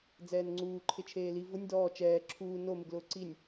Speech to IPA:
d͡zɛːnŋ͡ǀuːǃʰɪt͡ʃʰeː li vʊnʲ dɔː t͡ʃɛː ǁʰuː nomɪɡlʊː ǀinʲ

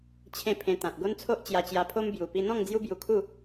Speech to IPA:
t͡ɕʰẽ˥˧pʰẽ˧ t̪ã˨t̚ ɡo˦nt͡sʰo˦ʔ t͡ɕja˧t͡ɕja˧pʰo˦m bju˨˩pi˧n̪ɔ̃˥˧ŋ d͡zju˦bju˧kʰu˥˧

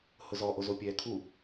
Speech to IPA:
hʊzɔ ʔozopʲɛːkʰu

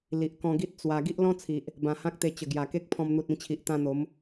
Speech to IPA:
li˨ʔkɔ̃˧ɡi˦t̚ t͡swa˧ ɡi˦ʔlɔ̃˦t͡sʰi˨ʔ | bã˨˩hã˦k̚ t̪e˧t͡ɕə˨˩ɡja˨˩ke˦k̚ pʰɔ̃˧m n̪u˨t̚ĩ˧t͡ɕʰi˨ʔ t̪ã˧n̪o˨˦m

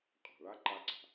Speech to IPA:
qʼa̤˩ɭa˧˥ ǃa˧ǀa̤˩

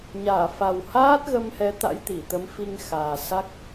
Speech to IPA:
ɲaː˧˩fa˨˩whaː˦˥t̚ ɣə˧mhɛ˨˦ t̪a̰˧˥jt̪i˧˩t̪ə˨˦m fi˧ŋxaː˨˩ sa˦˥k̚

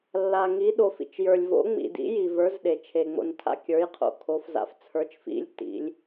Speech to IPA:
lːa˨ŋi˨˦ ɗo˨fḭ˨t͡ʃjə˞˨lʲ vo̰˨˦ŋ͡mḭ˨dḭ˨˦ji˨ və˞˨˦zɗe˨t͡ʃʰe˨ ŋ͡mo̰˨ntʰa̰˨kʲə˞˨˦jqʰo̰˨ kʰo˨˦fza̰˨˦f t͡sʰə˞˨˦t͡ʃfḭ˨˦lʲ tḭ˨˦lʲ

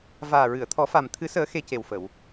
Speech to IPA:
vaː˨˩ɹɨ˨˩˨ə̯t̪ʰɔ˨˩˦fa˨˩m t̪ʰɨ˨˩˦səː˨˩˦ xe˧ce˨˩wfə˨˩˨w

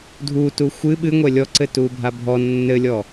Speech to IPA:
dʱutu xʷɨ ɓɨŋʷɛ lʲɔǀɘtubʱa bʱɔ nːɘlʲɔ

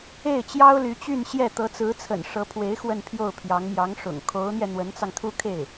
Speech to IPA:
e˥˩ɪ̯t͡ɕjɑ˥ʊ̯ly˧˥t͡ɕy˥˧n ɕjɛ˥˩ t̪ɤ˧˥t͡sɹ̩˧˥t͡sʰə̰˨˩n ʂɤ˧˥pʰwe˧˥ɪ̯ xwə˥˧npʰjo˥˩ʊ̯pʰjɑ˧˥ŋ mjɑ˧˥ŋʂʊ̰˨˩ŋ kʰo˧˥ʊ̯n̪jɛ˧ n̪wə˧˥nt͡sɑ˧ŋt̪ʰu˥ kʰe˥˩ɪ̯

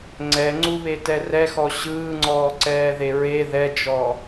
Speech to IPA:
ŋ͡ǀɛŋ͡ǀuβetɛ rɛxɔ ɕɯːŋ͡ǀɔːǀɛːðe ɹe ðɛd͡ʒɔ

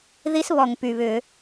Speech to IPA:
ði˦˥sβɔ˨˩ŋpy˨˩βʏː˧˩˧

